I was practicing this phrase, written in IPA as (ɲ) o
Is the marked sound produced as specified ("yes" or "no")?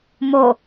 no